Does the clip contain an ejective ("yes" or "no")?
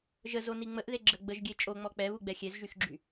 yes